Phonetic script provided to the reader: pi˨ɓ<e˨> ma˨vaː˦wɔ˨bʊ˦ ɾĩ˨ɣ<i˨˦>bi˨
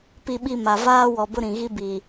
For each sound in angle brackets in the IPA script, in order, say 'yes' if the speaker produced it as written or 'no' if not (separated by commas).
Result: no, no